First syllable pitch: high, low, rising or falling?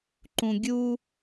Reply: low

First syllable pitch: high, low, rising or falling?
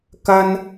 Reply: high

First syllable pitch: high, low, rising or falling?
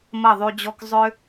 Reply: falling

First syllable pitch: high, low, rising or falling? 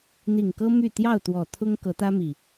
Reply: low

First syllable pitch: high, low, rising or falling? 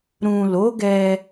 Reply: low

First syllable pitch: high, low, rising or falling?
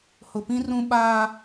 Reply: low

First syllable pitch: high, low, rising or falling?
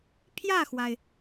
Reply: falling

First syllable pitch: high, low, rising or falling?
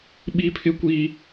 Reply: high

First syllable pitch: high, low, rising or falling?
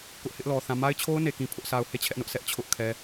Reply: high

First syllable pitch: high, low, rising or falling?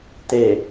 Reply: low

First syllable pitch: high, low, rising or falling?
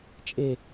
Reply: falling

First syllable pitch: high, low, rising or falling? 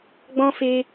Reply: high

